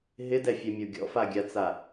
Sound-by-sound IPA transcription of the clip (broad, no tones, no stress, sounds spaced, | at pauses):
ɦ ɪ d ɛ fʲ ɛ mʲ o ɡʲ ɔ̰ f a ɡʲ a t͡s a